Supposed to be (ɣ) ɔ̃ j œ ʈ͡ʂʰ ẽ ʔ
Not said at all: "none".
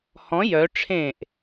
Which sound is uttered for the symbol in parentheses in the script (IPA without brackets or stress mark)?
h